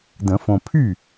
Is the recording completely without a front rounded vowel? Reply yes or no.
no